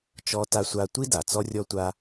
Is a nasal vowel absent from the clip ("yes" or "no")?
yes